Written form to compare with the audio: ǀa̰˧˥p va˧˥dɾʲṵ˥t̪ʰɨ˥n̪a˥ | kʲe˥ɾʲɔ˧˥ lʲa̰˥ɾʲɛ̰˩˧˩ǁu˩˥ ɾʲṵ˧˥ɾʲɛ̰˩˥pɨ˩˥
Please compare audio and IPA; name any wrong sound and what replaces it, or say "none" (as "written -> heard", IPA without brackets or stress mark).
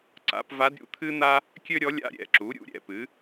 e˥ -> ø˥